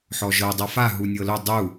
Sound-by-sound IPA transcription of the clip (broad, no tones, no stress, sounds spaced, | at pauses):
ħ ɔ ʒ ɤ dˤ ɤ f a ɦ u nʲ ɤ l ʊ dˤ u